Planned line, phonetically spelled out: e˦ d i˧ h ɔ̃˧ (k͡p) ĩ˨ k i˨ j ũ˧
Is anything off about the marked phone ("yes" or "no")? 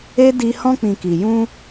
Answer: no